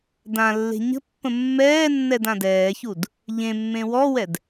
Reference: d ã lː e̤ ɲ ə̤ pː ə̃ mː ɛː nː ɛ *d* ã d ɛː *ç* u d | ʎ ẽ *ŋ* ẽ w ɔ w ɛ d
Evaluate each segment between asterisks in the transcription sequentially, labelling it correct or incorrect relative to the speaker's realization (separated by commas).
correct, correct, incorrect